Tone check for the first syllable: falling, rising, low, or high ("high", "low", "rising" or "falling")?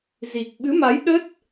low